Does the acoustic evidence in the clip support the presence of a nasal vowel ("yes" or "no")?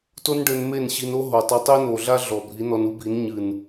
no